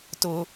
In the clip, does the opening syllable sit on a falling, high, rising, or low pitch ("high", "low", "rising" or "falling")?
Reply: high